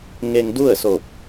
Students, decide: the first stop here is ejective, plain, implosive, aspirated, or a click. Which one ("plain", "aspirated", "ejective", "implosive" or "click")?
plain